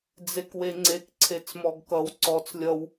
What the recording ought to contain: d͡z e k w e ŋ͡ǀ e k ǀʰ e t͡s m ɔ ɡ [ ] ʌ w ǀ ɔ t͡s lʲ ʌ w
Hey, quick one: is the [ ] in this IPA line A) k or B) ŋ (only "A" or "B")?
A